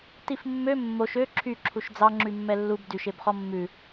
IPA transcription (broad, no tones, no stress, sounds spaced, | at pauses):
t i f mː ø mː o ʃ ø ǁʰ y ǁʰ u ʃ d͡z ɑ ŋ͡ǁ y mː ɛ lː u b d y ʃ e b χ ɔ mː ʉ